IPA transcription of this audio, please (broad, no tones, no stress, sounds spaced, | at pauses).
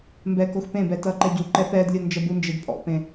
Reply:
m b ɛ k o x p ẽ b ɛ t ʌ ǃ ɛ ɟ u ǃ ɛ p ɛ d lʲ o n d͡ʒ ʌ b u n d͡ʒ ə d pʼ ɔ̰ p ẽ